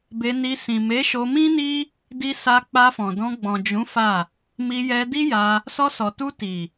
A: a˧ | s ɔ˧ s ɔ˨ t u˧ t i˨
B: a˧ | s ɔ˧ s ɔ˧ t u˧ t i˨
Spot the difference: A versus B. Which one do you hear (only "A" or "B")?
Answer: A